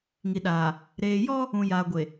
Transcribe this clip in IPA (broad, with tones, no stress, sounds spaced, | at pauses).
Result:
ŋ i˨ ɗ aː˨ | ɾ eː˨ j ɔ˦ | ũ˨ j a˨ ɡʷ e˨